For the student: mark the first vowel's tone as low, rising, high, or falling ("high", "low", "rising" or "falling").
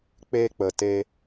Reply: high